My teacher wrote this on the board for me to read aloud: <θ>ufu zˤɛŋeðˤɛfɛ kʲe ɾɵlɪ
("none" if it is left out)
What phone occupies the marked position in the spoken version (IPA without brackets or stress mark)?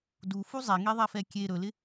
d